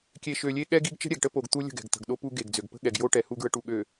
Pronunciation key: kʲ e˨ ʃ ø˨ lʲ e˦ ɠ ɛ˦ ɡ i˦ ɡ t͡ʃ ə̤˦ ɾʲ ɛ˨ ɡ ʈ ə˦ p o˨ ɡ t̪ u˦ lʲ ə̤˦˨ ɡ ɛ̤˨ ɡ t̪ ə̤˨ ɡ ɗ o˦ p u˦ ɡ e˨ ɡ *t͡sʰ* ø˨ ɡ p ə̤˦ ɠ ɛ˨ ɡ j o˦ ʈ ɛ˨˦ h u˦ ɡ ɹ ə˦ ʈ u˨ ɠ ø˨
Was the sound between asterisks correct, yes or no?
no